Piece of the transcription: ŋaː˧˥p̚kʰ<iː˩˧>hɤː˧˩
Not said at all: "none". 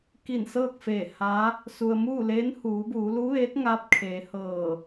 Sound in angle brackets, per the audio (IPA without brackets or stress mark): eː˩˧